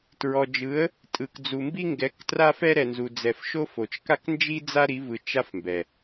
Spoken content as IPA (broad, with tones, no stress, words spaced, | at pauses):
tɹɔ˨d͡ʒɯ˨˦ə̯ | tʼɯ˨kd͡zu˨mbi˦ŋɡɛ˨˦k tra˦fɛ˦ɾɛ˨nzu˨ d͡zɛ˨fʃo˦fo˨t͡ʃ ka˦knd͡ʒi˦d͡za˦ ɾi˨˦vɯ˨ t͡ʃa˦fmbɛ˨